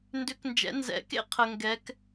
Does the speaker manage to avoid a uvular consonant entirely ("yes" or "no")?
no